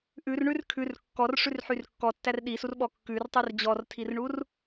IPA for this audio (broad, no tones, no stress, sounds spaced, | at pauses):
ʔ ʉ r ɳ ʉ r kʰ ʉ r kː ɔ r ʂ ʉ r ħ y r kː ɔ tː æ r ɗ i s u r ɓ ɔ kː ʉ r tˤ y r d͡ʑ ɔ r tʰ i r ɳ u r